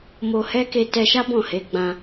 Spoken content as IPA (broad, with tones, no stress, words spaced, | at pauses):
mo˧ hɛ˦ke˧tɛ˧ʃa˦ bɔ̃˦˨he˨˦ ɡ͡bã˧